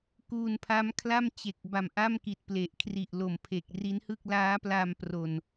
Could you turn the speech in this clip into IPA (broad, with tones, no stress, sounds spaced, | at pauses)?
k uː˧ n pʰ a˦˥ m kʰ l a˥˩ m t͡ɕ e˨˩ k̚ b a˨˩ m ʔ a˥˩ m k i˨˩ t̚ p l e˨˩ ʔ kʰ r i˨˩ ʔ l o˨˩ m pʰ e˨˩ k̚ r i˦˥ n h ɯ˥˩ k̚ l aː˦˥ p l a˧ m p r o˨˩ n